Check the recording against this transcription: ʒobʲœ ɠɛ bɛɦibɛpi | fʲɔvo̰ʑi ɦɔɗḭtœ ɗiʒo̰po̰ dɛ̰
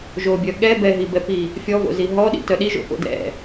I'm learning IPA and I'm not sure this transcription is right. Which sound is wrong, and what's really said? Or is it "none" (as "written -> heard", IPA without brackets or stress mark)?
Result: ʑ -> z